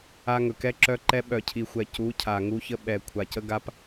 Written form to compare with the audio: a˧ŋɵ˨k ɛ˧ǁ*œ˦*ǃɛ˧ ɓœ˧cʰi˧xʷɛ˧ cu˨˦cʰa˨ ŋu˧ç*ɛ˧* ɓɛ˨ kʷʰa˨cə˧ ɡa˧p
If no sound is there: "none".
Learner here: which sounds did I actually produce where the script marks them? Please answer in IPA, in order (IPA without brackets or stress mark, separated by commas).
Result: œ˧, ə˧